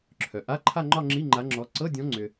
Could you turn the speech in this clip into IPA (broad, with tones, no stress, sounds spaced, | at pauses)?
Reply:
ǁʰ œ˩ ʔ a˧˥˧ ǃʰ a˥˧ ŋ͡ǃ ɒ˥˧ ŋ͡ǁ i˧˥˧ ŋ͡ǃ a˨˦ ŋ͡ǁ ɔ˨˦ ǀ ɤ˧˥˧ dʲ ɔ̃˨˦ ŋ͡ǀ ʏ˩